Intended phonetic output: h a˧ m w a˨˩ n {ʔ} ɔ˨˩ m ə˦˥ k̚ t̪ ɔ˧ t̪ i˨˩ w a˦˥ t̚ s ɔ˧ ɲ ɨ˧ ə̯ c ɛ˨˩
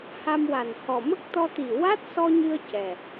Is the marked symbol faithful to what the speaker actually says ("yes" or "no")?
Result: no